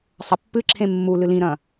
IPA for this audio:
sˤ ɐ pː ɨ ǁʰ ẽ mː u l ɨ l ĩ ɾ ɐ̃

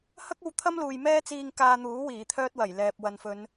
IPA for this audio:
h ɐ˥ k̚ o˧ w t̪ʰ ɐ˥ m l uː˨ j m ɛː˥ t͡s iː˧ ŋ k aː˧ n̪ uː˨˥ w iː˨˩ t̪ʰ œː˥ t̚ w ɐ˨˩ j l ɛː˨ p̚ w ɐ˨ n f ɵ˨˧ n

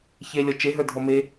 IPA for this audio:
ç e lʲ ɔ t͡ʃ e ɦ ə˞ dʱ ɔ m e

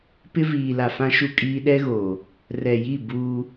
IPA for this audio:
p ɪ˦ v iː˨ l a˨ f ã˦ ʃ u˦ kʼ iː˦ ɗ ɛ˦ ɣ oː˨ | r ɛ˨ j i˦˨ b uː˦

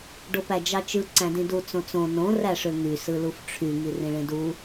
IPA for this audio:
ɖ o p æ d͡ʒ ɑ t͡ʃ ɯ ǀ æ̃ d ĩ d u t͡s õ t͡s õ n õ r æ ʂ ø ŋ y s ɯ l u f ʈ͡ʂʰ y ŋ i r ĩ ɭ ẽ d u

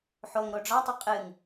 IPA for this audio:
ħ o ŋ ɾ o ɖ͡ʐ ɒ tˤ ə qʼ ɨ ŋ

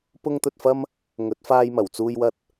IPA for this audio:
p ʊ˥ ŋ t̪ ɵ˧ t̚ f ɐ˥ m | ŋ ɵ˨˥ t̚ f aː˧ j m ɐ˨˩ w t͡s uː˧ j w ɐ˧ t̚

